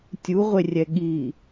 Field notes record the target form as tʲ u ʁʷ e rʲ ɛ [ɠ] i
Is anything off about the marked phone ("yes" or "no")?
no